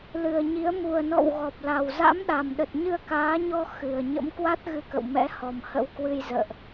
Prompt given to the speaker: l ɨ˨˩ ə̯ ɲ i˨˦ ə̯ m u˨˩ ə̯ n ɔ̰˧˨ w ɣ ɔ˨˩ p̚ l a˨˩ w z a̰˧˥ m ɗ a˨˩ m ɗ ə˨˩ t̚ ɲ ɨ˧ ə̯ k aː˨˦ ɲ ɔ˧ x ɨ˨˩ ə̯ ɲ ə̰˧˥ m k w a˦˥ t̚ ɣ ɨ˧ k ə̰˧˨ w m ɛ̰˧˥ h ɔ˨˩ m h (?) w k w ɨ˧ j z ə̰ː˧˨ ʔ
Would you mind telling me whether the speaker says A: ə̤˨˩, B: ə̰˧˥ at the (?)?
B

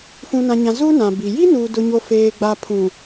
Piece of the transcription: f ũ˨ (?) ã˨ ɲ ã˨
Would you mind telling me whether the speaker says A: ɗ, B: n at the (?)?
B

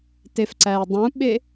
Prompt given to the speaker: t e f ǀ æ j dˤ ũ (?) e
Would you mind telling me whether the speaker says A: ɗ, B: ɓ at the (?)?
B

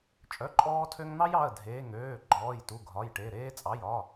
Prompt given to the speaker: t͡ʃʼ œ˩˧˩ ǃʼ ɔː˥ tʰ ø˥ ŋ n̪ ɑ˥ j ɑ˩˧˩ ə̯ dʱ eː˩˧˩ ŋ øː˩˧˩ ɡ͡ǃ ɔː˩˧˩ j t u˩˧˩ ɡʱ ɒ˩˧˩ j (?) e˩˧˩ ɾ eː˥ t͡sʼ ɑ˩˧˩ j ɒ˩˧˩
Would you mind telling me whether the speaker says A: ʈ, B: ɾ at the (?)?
A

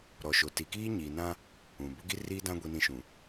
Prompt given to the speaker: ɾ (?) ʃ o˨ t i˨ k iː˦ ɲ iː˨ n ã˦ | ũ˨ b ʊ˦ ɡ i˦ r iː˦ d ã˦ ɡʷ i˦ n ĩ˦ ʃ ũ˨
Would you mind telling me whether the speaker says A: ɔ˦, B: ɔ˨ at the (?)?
B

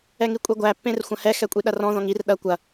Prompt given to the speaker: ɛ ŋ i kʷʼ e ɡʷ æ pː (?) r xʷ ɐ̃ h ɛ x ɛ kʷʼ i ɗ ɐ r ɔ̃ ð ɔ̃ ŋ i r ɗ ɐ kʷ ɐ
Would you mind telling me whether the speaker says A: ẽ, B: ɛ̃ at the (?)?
A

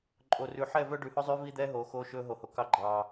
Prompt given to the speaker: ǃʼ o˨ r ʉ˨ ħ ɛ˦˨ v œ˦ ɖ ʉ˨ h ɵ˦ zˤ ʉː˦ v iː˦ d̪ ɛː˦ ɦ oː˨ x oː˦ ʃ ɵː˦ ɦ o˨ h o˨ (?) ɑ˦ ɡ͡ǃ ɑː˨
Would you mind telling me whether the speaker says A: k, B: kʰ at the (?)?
A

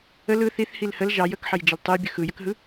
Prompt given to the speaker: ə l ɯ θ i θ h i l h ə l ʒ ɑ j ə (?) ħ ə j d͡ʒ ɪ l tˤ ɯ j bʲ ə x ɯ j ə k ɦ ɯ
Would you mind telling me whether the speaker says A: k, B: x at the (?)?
A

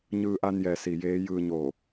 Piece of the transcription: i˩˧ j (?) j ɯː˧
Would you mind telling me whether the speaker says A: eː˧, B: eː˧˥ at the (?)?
B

